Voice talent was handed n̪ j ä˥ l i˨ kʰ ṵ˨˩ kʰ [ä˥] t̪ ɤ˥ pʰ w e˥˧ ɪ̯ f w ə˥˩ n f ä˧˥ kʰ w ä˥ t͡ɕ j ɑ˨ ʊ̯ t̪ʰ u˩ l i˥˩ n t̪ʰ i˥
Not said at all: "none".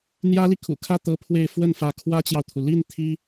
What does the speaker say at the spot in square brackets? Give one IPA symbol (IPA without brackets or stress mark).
ä˥˩